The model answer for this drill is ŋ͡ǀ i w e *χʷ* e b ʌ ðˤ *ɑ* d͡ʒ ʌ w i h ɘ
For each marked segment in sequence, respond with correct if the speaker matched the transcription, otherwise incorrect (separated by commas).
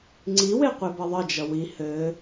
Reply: incorrect, incorrect